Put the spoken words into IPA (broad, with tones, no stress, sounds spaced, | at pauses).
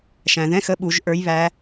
ʃ æ̃˩ ð ɛ̃˧˥˧ x ə˧˥˧ ɓ u˧˩˧ ʒ ʔ ə˞˧˥ j β æ˧˥